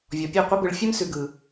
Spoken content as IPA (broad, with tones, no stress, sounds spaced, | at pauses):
vʲ ɔ˨ pʲ ʉ˦˨ qʷ ɛ˦ b ɯ˨ ɭ fʲ ɛ˦ m s ʉ˨ ɡ ɯ˨